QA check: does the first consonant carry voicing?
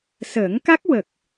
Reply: no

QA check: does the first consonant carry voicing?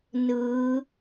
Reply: yes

